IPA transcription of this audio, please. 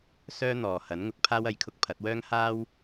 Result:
sœː˥n̪ɔː˨hɐ˨˥n ŋʊ˧k̚ pʰaː˥wɐ˨jkʰʊ˥k̚ pʰɐ˨˥t̚wœː˥ŋ haː˥w

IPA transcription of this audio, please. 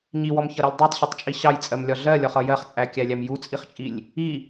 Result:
ɲiwɔmçʌɾilʲ dˤɜtˤɕʌtˤt͡ʃʼi ɕɑjt͡sʼɜmlʲɒ ɮɜlʲɒχʌ jɜχt͡sʼækʲælʲæm jut͡sʼiχt͡ʃʼilʲ | i

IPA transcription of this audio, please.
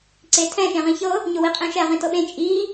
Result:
ǀetʰɛ̃ ʃẽʁĩçɤ | ɲʊwiqʼẽʃɛ ʁĩtɤɓẽ t͡ʃʼi

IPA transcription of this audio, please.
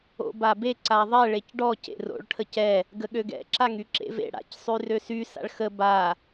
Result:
o̰babe ǀaðˤɛ ɭecɖɔ cḛro̰ɭ ʈʰəcɛ | ɡəɠøɡɛ̰ ǁaŋyǁḛvḛ ɽa̰c sˤyrøsy sa̰ɭxə ba

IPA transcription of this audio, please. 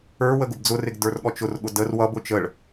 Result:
ə˞wə ɡʊbd͡zʊrɪɡ də˞rɠɔt͡ʃʊrɠʊ dər wʌbʊ t͡ʃəɭ

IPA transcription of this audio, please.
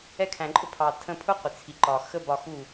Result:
ɛ˧kʰæ̃˨ǃʼʊ˧pʰɑ˨ tʰə̃˧pʰʊ˦ qʷɪ˨t͡sʰi˨ ǃɒ˨ xə˦bɒ˧xu˦˨

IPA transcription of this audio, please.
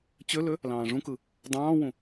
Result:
t͡ɕølø | lɑ̃ːʐũkɯ | dˤɑ̃ːwũ

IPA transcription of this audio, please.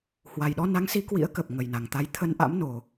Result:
hwa˨˩jɗɔ˧na˨˦ŋsi˨˦ kwḭ˧˥ə̯kə˨˩p̚ ŋə˨˩jna˨˩ŋt̪a˨˦j t̪ʰə˧nʔa̰˧˥mno˨˩

